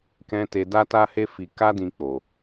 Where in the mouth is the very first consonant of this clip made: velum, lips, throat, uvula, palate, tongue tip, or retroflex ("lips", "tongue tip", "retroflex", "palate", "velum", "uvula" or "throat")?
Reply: velum